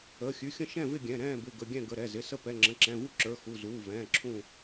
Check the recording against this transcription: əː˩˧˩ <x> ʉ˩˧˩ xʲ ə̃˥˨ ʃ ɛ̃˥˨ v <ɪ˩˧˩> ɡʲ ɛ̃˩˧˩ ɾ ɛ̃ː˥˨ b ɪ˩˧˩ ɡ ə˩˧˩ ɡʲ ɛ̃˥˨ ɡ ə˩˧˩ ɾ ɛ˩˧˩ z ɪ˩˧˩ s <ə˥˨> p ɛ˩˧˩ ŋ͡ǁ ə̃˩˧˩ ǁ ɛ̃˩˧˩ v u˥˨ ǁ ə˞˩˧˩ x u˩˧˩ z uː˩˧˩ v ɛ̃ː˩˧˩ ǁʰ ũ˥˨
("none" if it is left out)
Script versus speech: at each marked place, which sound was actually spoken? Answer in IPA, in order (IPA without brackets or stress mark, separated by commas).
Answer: xʲ, ɪ˥˨, ə˥˨